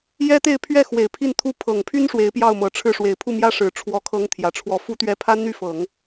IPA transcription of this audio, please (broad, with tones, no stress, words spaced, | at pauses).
jɛ˥t̪e˥˧ɪ̯pʰɥɛ˥˩xwe˨˩ɪ̯ pʰi˥˩nt̪ʰu˥ pʰɤ˨˩ŋpʰy˥n ʂwe˧˥ɪ̯pjɑ˥˩ʊ̯mɤ˨˩ʈ͡ʂʰɻ̩˥˩ ʂwe˨˩ɪ̯pʰu˥˩ mjä˥ʂɻ̩˨˩ʈ͡ʂʰwɔ˧˥ kʰɤ˥ŋt̪ʰjä˨˩ʈ͡ʂʰwɔ˥˩ fu˥t̪ɥɛ˥˩ pʰa˥nn̪y˥˩fɤ˨˩˦ŋ